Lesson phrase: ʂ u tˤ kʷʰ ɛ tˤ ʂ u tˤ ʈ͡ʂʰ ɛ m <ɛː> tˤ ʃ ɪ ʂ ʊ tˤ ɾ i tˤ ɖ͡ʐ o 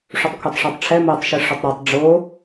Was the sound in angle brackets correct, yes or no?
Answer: yes